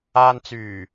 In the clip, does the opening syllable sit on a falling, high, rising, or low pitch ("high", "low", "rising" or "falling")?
low